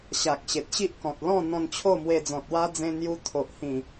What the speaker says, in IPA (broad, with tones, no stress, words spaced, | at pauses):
ɕa˨k̚ɕe˨t̚ɕi˦ʔkɔ̃˨t̚ lɔ̃˥˧ n̪ɔ̃˧n t͡ɕʰo˥˧mwe˧d͡zɔ̃˨t̚ wa˦d͡zẽ˧ n̪ju˧ t̪ʰo˨ʔhĩ˨˩